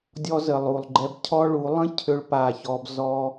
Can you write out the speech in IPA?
dʲ ɔ˧ z ə˨ lˠ u˨ lˠ ɡ͡ǃ ɛ˧ b cʰ ɔ˦ ɭ u˨˦ lˠ ə̃˦ cʰ ʏ˦ ɭ p a˦˨ ç ɔ˦ b z ɔ˦

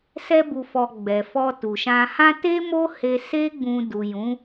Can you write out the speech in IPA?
s ɛ˧ b u˨ f ɔ˨ ɡ͡b ɛ˨ f ɔ˧ t u˨ ʃ ã˧ h ã˦ t e˦ m o˦ h e˧ s e˦ ɡ͡b ũ˧ d u˨ j ũ˨˦

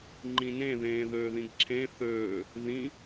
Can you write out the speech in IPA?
ŋ͡ǃ ĩ n ẽ ð ẽː ð øː ð ĩ ɡ ǁʰ ẽ θ øː | ð ĩ

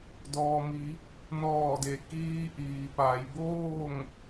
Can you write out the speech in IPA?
d ɔː˩ m i˩˧ | n ɔː˧˩ d e˩ k iː˧ ʔ iː˩ p a˩˧ j b oː˥˨ ŋ

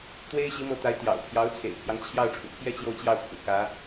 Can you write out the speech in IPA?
t̪ w e˥ ɪ̯ ɕ i˧˥ m ɤ˧˥ t̪ a˧˥ ɪ̯ t̪ j ɑ̰˨˩ ʊ̯ pʰ j ɑ˧˥ ʊ̯ t͡sʰ ḛ˨˩ ɪ̯ pʰ j ɑ˦ ŋ t͡ɕʰ j ɑ˥˩ ʊ̯ ʈ͡ʂʰ ṵ˨˩ pʰ j ɛ˥ t͡ɕ j o˥˧ ʊ̯ t͡ɕ j ɑ˥˩ ʊ̯ pʰ ṵ˨˩ k ä˧˥

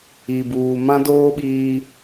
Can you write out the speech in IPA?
i˨ b uː˨ m ã˦ d oː˦ ɓ iː˦

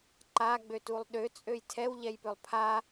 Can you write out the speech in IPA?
ǃ a ɡ͡b ø t u lˠ ɗ ø t͡sʼ ø j tʰ ɛ w ʎ ɛ j p ø lˠ pʰ a

